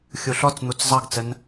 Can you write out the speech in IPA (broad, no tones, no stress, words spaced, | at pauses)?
xʲuɬɔt͡sn̪ut͡s zˤɑɡt͡sən